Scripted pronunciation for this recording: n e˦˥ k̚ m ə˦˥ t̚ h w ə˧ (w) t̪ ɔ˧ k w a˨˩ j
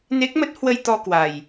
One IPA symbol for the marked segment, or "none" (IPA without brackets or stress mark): j